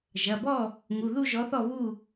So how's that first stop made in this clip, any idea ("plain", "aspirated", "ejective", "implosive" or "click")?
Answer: plain